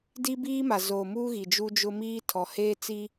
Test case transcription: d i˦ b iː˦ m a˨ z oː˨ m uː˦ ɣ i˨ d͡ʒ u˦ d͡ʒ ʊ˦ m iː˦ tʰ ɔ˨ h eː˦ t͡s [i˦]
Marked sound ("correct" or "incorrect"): correct